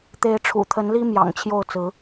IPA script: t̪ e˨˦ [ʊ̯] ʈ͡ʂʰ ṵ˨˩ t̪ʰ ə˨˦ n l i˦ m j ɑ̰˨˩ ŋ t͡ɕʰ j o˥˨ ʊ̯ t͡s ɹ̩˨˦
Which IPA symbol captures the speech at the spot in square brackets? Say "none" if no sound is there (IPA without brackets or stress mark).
ɪ̯